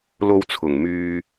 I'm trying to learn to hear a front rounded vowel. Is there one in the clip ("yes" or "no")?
yes